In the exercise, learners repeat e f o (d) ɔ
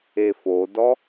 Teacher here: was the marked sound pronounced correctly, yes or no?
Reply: yes